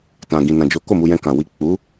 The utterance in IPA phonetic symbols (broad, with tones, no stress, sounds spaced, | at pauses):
t ã˨ ɡ ĩ˨ n ã˨ d͡ʒ o˨˦ k o˦˨ m u˧ j ɛ̃˧ k ã˨ w i˨ k͡p u˨˦